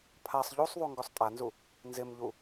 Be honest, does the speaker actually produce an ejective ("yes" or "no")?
yes